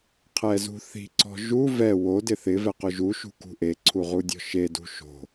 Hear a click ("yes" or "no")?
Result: yes